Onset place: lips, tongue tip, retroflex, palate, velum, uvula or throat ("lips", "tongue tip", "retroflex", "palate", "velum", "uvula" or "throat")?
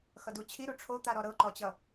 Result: velum